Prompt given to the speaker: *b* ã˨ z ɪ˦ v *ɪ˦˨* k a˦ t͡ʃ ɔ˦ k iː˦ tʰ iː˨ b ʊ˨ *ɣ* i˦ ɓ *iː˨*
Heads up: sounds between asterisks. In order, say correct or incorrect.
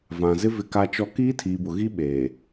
incorrect: v, correct, correct, incorrect: eː˨

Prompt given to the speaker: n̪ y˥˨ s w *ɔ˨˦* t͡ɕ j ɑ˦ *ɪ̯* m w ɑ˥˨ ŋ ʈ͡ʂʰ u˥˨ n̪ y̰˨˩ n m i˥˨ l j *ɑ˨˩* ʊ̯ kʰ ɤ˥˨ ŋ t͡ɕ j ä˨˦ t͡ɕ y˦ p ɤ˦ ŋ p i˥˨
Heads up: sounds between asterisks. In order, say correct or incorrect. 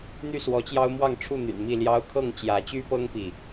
correct, incorrect: ʊ̯, incorrect: ɑ˦

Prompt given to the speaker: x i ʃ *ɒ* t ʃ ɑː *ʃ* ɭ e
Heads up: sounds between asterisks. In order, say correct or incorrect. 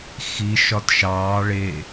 correct, incorrect: none

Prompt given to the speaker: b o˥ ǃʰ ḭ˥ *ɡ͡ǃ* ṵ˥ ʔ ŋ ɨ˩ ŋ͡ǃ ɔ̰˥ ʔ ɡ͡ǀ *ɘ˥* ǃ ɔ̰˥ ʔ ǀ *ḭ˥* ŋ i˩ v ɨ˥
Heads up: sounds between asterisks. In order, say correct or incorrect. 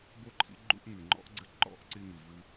correct, correct, incorrect: i˥

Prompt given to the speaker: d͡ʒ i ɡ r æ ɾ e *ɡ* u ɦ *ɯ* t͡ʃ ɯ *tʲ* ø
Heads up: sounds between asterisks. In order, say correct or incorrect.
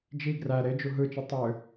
incorrect: d͡ʒ, correct, incorrect: tˤ

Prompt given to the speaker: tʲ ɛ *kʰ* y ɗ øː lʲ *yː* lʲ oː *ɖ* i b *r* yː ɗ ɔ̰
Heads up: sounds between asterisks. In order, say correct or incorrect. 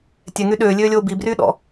incorrect: ŋ, incorrect: øː, incorrect: b, correct

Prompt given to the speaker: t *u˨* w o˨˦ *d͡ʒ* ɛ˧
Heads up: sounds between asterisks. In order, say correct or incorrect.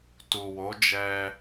correct, correct

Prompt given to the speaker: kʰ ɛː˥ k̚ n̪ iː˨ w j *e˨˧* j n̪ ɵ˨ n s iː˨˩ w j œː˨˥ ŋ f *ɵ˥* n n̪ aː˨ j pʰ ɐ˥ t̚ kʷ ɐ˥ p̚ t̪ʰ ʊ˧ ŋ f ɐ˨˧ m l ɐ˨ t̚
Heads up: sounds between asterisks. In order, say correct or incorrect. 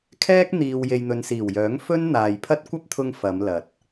incorrect: e˨, correct

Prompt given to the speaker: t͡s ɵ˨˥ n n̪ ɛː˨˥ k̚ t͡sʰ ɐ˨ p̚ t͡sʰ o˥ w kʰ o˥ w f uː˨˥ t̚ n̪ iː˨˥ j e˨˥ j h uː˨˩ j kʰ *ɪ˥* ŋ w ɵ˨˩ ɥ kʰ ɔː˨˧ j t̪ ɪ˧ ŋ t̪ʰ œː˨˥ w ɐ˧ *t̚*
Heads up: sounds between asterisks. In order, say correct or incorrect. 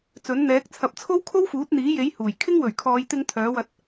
correct, correct

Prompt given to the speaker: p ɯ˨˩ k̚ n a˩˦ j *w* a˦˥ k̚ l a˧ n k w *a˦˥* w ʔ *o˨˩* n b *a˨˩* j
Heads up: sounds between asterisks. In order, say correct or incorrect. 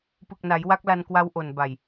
correct, correct, correct, correct

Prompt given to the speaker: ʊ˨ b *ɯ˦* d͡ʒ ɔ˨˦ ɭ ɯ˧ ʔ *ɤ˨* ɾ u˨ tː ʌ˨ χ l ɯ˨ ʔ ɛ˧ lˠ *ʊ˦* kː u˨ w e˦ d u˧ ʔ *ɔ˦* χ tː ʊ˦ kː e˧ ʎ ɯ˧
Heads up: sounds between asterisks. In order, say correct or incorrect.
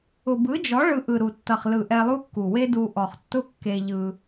incorrect: ɯ˨˦, incorrect: ɯ˨, incorrect: u˦, incorrect: ɔ˨

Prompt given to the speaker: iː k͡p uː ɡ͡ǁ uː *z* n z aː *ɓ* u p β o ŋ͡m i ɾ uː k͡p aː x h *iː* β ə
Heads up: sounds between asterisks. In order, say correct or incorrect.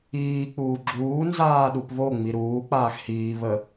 incorrect: none, incorrect: ɗ, correct

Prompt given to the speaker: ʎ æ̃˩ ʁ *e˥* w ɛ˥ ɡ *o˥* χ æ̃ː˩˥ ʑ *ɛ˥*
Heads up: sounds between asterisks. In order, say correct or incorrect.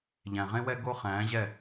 incorrect: ẽ˥, correct, incorrect: ɛ˥˩

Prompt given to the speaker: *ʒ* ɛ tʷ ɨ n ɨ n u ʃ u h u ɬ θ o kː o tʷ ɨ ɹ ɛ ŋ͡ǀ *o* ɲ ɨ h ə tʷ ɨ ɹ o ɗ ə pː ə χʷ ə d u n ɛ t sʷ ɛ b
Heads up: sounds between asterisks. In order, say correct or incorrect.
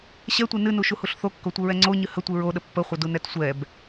incorrect: ɕ, correct

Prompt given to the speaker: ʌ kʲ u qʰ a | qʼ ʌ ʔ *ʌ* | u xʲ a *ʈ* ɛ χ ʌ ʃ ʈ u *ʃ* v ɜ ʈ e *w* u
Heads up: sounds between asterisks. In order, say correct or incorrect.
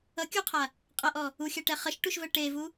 incorrect: ɔ, correct, correct, incorrect: v

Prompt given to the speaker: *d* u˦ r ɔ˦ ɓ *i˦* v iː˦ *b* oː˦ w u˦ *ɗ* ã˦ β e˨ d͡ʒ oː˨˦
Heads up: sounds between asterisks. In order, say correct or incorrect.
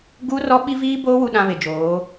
incorrect: ɡ, correct, correct, correct

